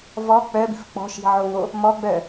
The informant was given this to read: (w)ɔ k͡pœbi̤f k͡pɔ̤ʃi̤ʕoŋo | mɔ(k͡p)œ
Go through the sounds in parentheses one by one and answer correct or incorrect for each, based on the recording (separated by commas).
incorrect, incorrect